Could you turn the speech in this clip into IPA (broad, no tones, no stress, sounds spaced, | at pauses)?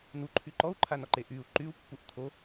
n̪ u ǃʰ y ǃ ɔ u̯ ǃʰ a n ɔ ǃ e ʔ y u̯ ǃ y u̯ pː u ʔ t̪ʰ o